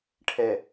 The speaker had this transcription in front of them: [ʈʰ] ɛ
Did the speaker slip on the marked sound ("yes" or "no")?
no